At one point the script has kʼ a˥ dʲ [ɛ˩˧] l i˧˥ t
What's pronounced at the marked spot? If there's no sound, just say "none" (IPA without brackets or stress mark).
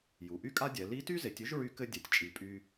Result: ɛ˩˧